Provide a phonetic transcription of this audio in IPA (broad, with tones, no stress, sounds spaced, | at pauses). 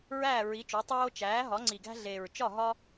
ɹ æː˥˩ ɹ i˩˥ t͡ʃ o˩˥ tˤ oː˦ t͡ʃ æː˩˥ ɦ ɒ˩˥ ŋ͡ǀ i˨˩ ɡ æ̤˦ ɮ eː˨˩ ɹ t͡ʃ ɒ˥˩ ɦ ɒ˦